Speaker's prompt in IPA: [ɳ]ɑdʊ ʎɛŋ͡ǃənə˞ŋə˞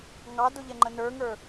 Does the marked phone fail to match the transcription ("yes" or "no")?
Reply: yes